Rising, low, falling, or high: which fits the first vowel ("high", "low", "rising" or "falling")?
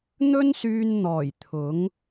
high